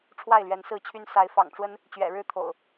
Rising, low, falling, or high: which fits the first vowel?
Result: falling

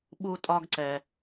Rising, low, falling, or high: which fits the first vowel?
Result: high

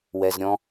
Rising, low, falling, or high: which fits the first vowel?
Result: low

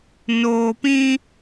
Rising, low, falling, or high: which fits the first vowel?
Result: low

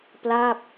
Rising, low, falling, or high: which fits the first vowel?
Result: falling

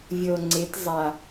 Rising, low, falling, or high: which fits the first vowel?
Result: low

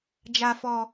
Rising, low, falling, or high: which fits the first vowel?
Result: low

